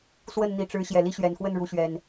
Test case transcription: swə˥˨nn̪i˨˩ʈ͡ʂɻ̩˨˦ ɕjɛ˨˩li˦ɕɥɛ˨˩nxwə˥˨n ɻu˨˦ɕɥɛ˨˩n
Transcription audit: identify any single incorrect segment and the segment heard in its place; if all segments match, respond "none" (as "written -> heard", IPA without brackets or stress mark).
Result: none